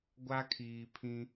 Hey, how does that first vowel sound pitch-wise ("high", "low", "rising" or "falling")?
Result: high